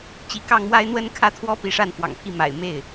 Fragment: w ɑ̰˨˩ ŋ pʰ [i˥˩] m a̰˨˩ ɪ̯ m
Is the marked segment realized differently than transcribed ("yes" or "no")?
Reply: no